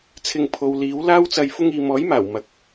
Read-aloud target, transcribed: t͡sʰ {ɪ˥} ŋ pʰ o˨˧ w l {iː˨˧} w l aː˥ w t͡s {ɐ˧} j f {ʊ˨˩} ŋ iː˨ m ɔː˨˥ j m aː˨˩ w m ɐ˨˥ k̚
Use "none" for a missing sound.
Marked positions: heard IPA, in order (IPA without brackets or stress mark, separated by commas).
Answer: ɪ˧, iː˨˥, ɐ˧, ʊ˧